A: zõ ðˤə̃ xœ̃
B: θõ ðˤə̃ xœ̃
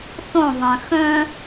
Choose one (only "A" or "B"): B